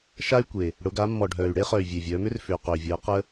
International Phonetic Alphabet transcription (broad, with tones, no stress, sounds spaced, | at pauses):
ʃ a˧ y̯ kʷ e˩ | ɽ ʊ˩˧ ɡ a˩˧ mː ɔ˩ ɖʱ œː˩ y̯ ɽ e˧ χ œ˩ y̯ vʲ e˩ vʲ œː˩˧ m ʏ˥ r f ʏː˩ q ʏː˩ vʲ əː˩˧ q ə˧